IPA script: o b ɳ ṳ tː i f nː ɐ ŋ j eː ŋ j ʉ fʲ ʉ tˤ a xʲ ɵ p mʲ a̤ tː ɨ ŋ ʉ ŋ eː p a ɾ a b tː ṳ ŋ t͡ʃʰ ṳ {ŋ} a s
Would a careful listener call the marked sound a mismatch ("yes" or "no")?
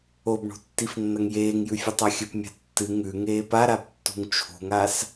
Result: no